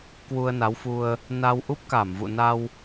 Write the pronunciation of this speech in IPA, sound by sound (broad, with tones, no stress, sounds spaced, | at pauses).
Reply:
k w u˧ ə̯ n a˨˦ w f u˧ ə̯ | n a˧ w ʔ u˦˥ p̚ k a˧˩ m v ṵ˧˨ n a˧ w